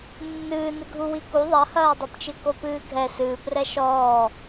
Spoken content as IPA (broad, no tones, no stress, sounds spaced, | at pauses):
nː ɨː n ɨ ɡʱ u w i k u ðˤ ɐ h ɐː dˤ e p t͡ʃ ɨ k o p ɨː ɡʱ ɛ s ɨː p r ɛ ʃ ɔː